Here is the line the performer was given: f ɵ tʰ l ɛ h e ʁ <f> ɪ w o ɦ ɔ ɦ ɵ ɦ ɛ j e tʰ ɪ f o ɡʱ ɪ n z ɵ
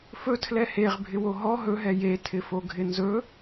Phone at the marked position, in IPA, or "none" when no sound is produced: bʱ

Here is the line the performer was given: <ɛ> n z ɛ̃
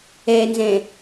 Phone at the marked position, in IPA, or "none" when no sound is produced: ɛ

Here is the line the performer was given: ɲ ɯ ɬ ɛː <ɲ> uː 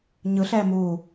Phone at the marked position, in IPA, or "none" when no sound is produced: m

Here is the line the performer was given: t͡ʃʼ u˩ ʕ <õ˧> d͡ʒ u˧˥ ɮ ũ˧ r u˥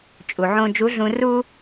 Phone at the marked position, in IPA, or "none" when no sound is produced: õ˧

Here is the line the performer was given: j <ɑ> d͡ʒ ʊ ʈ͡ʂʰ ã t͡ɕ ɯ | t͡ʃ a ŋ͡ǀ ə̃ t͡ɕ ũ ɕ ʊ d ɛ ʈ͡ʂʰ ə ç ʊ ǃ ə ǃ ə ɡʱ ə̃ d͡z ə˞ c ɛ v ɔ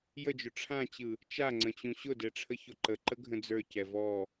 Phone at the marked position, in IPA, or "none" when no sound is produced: ə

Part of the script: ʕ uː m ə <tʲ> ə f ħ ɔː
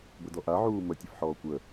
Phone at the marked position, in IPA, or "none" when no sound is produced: tʲ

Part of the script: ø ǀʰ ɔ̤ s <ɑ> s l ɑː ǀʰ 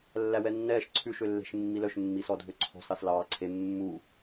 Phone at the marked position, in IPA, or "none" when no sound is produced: ɑ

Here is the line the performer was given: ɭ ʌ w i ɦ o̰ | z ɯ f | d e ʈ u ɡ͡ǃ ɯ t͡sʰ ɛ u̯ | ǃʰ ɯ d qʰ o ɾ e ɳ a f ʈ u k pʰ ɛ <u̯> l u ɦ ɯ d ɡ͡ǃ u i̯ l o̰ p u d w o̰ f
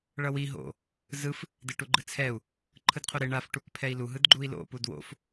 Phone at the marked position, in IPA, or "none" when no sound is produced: i̯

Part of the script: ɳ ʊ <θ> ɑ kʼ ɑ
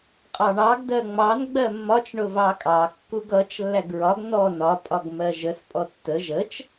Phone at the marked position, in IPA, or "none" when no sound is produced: v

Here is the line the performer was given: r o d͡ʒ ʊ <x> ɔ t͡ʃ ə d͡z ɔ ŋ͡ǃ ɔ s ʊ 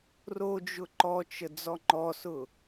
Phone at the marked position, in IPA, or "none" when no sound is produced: ǃ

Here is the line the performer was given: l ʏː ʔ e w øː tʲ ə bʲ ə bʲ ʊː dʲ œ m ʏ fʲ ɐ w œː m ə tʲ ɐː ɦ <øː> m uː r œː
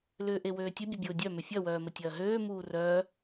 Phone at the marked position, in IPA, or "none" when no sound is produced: øː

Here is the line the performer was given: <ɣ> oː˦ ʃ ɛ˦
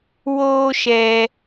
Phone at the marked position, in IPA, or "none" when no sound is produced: w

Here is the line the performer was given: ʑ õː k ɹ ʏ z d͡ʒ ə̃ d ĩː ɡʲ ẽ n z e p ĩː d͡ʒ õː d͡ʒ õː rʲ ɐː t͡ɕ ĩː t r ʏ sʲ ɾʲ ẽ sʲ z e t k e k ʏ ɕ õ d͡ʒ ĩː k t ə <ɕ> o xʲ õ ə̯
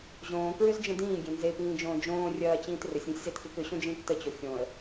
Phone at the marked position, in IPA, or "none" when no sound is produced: t͡ɕ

